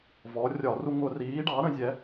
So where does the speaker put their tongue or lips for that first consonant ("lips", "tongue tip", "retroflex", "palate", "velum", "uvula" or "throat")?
lips